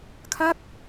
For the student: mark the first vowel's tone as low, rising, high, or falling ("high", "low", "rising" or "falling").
falling